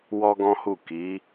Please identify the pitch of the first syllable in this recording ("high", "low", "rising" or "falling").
high